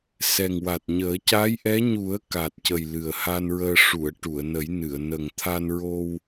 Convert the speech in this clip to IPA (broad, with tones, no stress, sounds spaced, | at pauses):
s ɛ˨˩ ŋ w a˨˩ t̚ ɲ əː˨˩˦ c a˧˥ j ʔ ɛ˧˥ ɲ u˨˩˦ ə̯ k a˨˩ t̚ c ə˨˩ j l ɨ˨˩ ə̯ h a˧ n ɹ əː˧ ʂ u˨˩˨ ə̯ ʈ u˨˩˨ ə̯ n ə˨˩˦ j n ɨ˨˩˨ ə̯ n ə˨˩ ŋ t̪ʰ a˧ n ɹ o˧ w